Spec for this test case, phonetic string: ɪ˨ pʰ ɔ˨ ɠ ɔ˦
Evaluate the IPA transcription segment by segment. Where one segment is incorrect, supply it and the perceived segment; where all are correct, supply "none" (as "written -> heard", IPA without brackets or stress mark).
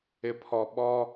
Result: ɠ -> ɓ